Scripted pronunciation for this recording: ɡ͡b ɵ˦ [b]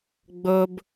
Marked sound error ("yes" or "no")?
no